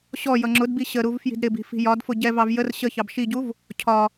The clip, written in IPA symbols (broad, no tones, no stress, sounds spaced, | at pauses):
ɕ ɔ j ʌ ŋ͡ǁ ʊ d b i ɕ ə ɾ u v f j i̤ d ɾ ɪ b i̤ f i̤ j ɒ d f ʊ ɟ ɛ v ɑ v j ə r ɕ ə ç ɑ b ʃ i ɟ u v | cʰ ɒ